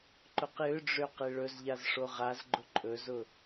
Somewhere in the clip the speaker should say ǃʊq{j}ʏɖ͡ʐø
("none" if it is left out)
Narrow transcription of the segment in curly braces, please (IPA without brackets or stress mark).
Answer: j